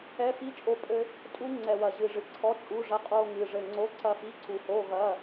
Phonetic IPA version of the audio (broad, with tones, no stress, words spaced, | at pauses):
ɛ˧˥˧fi˦˥ t͡ʃʼo˦˥pʼɘ˦˥ | tʼu˦˥ŋ͡ǀɛ˧˩ wɐ˧˩ʑɨ˧˩ʐɨ˧˩ ǀʰɔ˧˥˧t͡ʃʼu˧˥˧ʐɐ˦˥ qʼo˧˥˧ŋɨ˧˩ ʐɘ˧˩ŋ͡ǀo˧˥˧ ǀɐ˦˥fi˧˥˧ǀu˧˩ ho˧˥˧ɣɐ˧˥˧